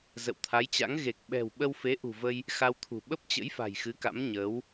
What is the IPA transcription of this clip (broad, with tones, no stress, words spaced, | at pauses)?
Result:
zə̰˧˨wt̪ʰa˨˦jt͡ɕa̰˧˥ŋ ɣe˨˩k̚ɓɛ̤˨˩w ɓə˧wfe˨˦ʔṳ˨˩və˧j | xa˧wt̪ʰṳ˨˩ ɓə˦˥p̚t͡ɕə̰˧˥jfa̤˨˩j xɨ˨˦ka̰˧˥mɲəː˨˦w